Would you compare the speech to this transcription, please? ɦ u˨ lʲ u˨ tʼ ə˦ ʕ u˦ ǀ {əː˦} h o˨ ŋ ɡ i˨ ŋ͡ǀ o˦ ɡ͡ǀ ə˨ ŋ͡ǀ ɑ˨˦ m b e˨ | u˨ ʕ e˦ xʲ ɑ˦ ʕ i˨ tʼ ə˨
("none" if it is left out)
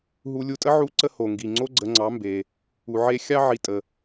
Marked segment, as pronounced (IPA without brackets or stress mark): ə˦